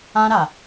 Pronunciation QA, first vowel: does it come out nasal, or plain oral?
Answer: nasal